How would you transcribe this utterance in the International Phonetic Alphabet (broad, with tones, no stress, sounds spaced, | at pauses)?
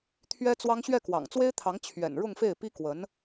t̪ʰ ɥ ɛ˥ t͡s w ɑ˥ ŋ ɕ ɥ ɛ˥˩ k w ɑ̰˨˩ ŋ t͡s w e˥ ɪ̯ t̪ʰ ɑ˧˥ ŋ t͡ɕʰ ɥ ɛ̰˨˩ n ɻ ʊ˥˧ ŋ f e˥˩ ɪ̯ p i˥ k w ə˧˥ n